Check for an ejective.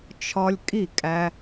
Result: present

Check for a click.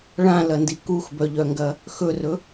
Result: absent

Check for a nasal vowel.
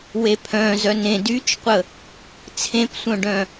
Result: present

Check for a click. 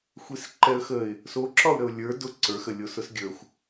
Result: present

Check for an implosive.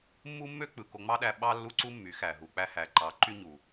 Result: present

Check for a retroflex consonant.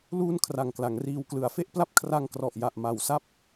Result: absent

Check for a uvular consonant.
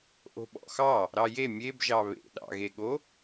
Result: absent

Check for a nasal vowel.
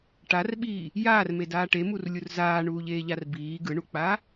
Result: absent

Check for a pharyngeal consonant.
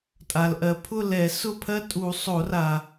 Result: absent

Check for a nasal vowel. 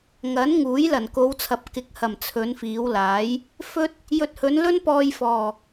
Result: absent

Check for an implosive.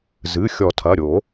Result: absent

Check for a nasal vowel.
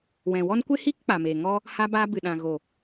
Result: present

